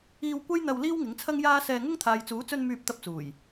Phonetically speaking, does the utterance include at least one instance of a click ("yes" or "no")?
no